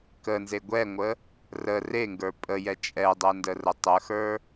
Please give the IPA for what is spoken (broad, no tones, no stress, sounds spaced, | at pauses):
k ə n z e ɡʷ ɛ ŋʷ ə | r ə r e ŋ ɡ ə˞ pʼ ə j ɛ t͡ʃʼ ɛ dˤ ɛ n d ə r ə tˤ ə x ə˞